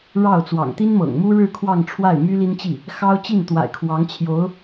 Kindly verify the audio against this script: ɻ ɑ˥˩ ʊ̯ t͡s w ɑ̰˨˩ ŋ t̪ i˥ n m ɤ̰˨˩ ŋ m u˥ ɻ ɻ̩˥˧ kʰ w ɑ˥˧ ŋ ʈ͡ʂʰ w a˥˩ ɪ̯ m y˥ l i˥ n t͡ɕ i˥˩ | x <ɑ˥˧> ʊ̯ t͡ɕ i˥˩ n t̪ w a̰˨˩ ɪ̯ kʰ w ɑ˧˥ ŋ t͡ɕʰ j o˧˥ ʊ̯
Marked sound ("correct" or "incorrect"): incorrect